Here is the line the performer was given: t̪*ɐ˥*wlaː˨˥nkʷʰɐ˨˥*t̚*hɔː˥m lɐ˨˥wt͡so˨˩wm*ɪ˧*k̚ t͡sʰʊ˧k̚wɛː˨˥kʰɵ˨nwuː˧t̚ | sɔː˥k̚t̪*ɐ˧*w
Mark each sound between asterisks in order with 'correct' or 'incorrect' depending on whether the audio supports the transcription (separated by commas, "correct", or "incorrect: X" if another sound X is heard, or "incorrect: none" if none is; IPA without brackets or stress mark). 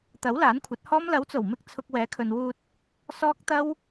incorrect: ɐ˨˥, correct, correct, incorrect: ɐ˥